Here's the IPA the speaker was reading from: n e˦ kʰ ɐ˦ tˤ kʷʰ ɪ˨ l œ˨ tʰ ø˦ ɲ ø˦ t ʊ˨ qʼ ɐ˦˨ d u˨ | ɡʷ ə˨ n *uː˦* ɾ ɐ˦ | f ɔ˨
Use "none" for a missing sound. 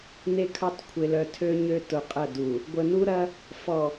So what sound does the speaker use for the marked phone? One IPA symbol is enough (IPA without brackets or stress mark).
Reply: u˦